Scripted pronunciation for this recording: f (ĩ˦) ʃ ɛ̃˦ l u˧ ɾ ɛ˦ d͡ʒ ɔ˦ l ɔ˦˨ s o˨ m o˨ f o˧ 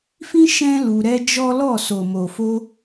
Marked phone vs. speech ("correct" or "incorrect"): correct